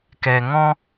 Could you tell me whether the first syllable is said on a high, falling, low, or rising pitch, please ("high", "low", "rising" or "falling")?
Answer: low